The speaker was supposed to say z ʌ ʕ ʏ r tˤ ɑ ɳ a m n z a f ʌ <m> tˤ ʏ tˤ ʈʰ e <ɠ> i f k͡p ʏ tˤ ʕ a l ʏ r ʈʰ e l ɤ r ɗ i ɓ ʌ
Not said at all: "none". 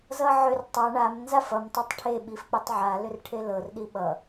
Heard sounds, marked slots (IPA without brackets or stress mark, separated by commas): m, ɓ